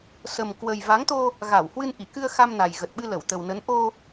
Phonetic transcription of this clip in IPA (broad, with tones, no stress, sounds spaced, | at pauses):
s ə˨˩ m k w ə˨˩ j v a˨˦ ŋ t̪ o˧ | ɣ a˧˩ w h w ɨ˧ n ʔ i˧˩ k ɨ˧ ə̯ x a˧ m n a˨˩ j ɣ ə˨˩ t̚ ɓ ɨ˧ l ə˧˩ w t̪ ə˨˩ w n ə˨˦ n ʔ o˧